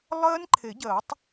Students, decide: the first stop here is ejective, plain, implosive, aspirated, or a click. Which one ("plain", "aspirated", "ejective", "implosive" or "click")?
click